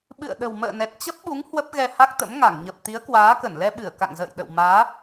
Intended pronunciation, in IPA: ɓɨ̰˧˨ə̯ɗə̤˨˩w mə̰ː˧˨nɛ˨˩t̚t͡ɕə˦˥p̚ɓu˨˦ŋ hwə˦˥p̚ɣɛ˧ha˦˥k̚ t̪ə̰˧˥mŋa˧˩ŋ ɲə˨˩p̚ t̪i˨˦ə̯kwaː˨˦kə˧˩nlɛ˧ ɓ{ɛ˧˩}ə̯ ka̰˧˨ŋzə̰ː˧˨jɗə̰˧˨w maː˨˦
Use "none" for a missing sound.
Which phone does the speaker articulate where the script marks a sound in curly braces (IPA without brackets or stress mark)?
ɨ˧˩